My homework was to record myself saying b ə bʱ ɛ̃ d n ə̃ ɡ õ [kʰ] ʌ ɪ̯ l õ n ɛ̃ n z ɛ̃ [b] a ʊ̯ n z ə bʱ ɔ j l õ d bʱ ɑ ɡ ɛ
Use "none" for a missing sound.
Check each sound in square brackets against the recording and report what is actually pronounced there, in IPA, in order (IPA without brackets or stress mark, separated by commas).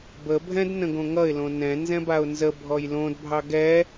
ŋ, b